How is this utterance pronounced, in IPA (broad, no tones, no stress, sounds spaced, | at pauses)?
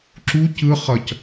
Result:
ǁ u c ɯ χ ʌ c